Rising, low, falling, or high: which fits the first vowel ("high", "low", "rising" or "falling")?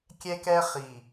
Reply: high